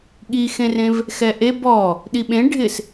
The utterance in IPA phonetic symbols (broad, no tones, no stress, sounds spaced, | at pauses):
ɠ i x ẽ r ẽ v | x ɛ ʔ e b ɔ | ɗ i ɓ ẽ ɖʱ ɪ s